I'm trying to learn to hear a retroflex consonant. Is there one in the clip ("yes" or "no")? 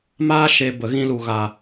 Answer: no